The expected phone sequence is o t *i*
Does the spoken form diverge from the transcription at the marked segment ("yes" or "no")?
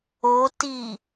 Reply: no